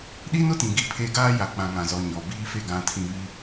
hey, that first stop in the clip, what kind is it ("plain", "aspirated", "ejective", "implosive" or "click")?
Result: implosive